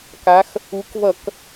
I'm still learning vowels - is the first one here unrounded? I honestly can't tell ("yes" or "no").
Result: yes